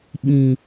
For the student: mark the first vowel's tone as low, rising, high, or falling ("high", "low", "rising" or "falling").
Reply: low